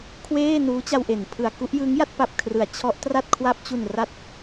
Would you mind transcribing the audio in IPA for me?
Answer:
kʰ w eː˥˩ n uː˦˥ t͡ɕ a˧ w ʔ e˩˦ n pʰ ɯ˨˩ a̯ k u˥˩ ʔ j ɯ˦˥ ŋ j a˥˩ t̚ p a˨˩ p̚ kʰ r ɯ˩˦ a̯ t͡ɕʰ ɔ˦˥ ʔ t r a˥˩ t̚ kʰ w a˥˩ p̚ t͡ɕ u˨˩ n r a˦˥ t̚

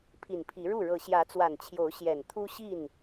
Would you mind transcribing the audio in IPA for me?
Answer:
pʰ i˨˩ n pʰ i˨˦ ɻ u˥˨ ɻ ɤ˨˦ ɕ j ä˨˦ t͡s w a˨˩ n t͡ɕʰ j o˨˦ ʊ̯ ɕ j ɛ˨˩ n t̪ʰ u˦ ɕ i˥˨ n

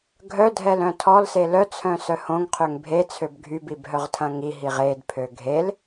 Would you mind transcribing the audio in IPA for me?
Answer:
ɡʱ œ dʱ ɛ l œ̃ tʰ ɔ l s e l œ t͡sʰ œ̃ s œ h õ ŋ qʰ ø ŋ bʱ e t͡sʰ ø b ɡʱ y b i b ɦ œ ʁ tʰ ɐ̃ ŋ i ɦ i ʁ e d pʰ ø ɡʱ e l

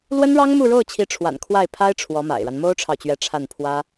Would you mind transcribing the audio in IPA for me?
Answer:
l w ə˥ n ɻ ɑ˥ ŋ m u˥˧ ɻ o˥˩ ʊ̯ t͡ɕʰ i˧˥ ʈ͡ʂʰ w a̰˨˩ n kʰ w a˥˩ ɪ̯ pʰ a˥ ɪ̯ ʈ͡ʂʰ w ɔ˧˥ m a̰˨˩ ɪ̯ ɻ a˦ n m o˥ ʊ̯ ʈ͡ʂʰ ɑ˨ ʊ̯ t͡ɕ ɥ ɛ˧˥ ʈ͡ʂʰ a˥˩ n pʰ w ä˥

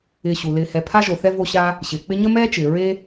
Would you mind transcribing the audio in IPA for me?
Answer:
ɪː˨ ɕ u˩ l ɪː˨ h ɛ˨ pʰ a˥ ʒ o˨ θ ɛ˥ v o˦ ɕ a˥ | ɕ ɪː˩ k͡p ɪ˦ ɲ ə˥ m ɛː˥ t͡ʃ ɪː˩ ɹ e˥

